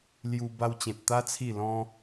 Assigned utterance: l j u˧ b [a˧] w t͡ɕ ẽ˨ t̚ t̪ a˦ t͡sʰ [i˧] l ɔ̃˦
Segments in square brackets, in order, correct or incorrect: correct, incorrect: i˥˧

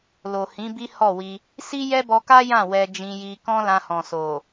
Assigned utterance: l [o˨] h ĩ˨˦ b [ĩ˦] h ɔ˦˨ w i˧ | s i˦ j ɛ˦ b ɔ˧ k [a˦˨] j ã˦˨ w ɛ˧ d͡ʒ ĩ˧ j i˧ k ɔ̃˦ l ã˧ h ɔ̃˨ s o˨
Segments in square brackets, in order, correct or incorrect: correct, incorrect: i˦, incorrect: a˦

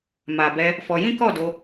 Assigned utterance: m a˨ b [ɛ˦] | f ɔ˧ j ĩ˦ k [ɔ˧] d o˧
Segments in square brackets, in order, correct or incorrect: incorrect: ɛ˧, incorrect: ɔ˦˨

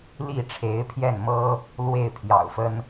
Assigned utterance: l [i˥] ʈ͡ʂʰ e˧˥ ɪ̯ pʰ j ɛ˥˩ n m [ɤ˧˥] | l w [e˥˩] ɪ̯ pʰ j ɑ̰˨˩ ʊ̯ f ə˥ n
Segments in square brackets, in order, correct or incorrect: incorrect: i˥˩, incorrect: ɤ˥, correct

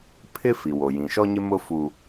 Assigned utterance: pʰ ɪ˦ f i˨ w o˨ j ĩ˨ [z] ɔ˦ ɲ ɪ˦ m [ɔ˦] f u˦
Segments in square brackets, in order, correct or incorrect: incorrect: ʃ, incorrect: ʊ˦

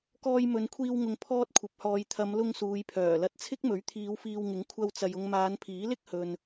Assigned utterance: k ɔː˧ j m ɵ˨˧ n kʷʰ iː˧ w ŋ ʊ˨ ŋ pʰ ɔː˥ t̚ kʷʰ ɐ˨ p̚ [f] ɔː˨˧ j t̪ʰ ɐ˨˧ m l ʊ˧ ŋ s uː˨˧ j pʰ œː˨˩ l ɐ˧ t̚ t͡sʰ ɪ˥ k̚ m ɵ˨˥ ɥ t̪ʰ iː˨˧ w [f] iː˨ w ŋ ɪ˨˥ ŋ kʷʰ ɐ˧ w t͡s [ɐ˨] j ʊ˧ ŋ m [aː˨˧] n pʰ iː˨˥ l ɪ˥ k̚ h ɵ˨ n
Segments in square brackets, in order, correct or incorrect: incorrect: h, correct, correct, correct

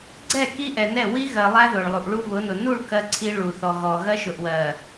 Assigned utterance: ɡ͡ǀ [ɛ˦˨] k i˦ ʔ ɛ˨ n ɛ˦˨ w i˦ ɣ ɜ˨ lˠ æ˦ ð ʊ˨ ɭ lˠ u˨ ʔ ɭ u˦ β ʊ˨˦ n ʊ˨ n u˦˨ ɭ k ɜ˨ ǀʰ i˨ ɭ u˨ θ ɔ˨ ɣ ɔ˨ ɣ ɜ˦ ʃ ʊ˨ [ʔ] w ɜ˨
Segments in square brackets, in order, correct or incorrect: correct, correct

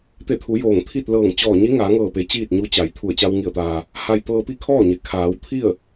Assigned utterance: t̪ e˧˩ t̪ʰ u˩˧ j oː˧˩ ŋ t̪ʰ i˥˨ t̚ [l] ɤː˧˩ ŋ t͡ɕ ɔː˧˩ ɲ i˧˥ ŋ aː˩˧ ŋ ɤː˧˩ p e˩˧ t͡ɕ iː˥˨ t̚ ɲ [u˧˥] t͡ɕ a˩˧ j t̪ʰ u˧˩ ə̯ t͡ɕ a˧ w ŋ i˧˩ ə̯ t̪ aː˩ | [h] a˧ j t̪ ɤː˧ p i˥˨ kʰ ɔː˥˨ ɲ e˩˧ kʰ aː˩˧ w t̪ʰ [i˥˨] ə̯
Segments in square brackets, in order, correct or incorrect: correct, correct, correct, correct

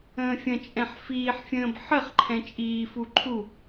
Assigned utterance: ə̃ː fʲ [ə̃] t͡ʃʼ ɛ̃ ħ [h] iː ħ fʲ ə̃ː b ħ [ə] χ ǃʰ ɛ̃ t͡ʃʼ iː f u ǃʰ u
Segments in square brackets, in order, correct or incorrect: correct, incorrect: f, correct

